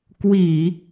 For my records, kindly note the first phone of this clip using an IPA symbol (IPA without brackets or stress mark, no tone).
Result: k